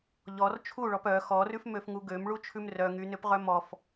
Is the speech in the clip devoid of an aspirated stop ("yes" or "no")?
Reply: no